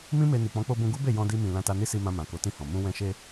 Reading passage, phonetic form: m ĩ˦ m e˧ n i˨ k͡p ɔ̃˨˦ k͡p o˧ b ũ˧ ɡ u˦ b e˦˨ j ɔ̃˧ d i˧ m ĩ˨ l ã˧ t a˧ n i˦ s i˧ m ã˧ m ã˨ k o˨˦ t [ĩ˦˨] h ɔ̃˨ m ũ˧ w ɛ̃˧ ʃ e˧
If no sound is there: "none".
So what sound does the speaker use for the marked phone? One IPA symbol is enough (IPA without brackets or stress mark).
ĩ˦˨